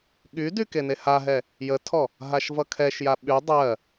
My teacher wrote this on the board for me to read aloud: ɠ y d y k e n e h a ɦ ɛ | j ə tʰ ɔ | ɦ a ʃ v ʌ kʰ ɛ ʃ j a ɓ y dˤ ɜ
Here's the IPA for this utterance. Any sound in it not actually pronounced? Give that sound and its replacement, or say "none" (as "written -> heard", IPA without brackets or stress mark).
none